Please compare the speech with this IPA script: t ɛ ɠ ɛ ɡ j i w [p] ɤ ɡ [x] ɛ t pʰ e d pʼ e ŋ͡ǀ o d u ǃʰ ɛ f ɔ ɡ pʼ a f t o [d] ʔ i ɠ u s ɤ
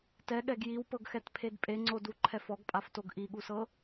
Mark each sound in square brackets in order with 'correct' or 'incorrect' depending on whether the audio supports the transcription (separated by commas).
correct, correct, incorrect